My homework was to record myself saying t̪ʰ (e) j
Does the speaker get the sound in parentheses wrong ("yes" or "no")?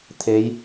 no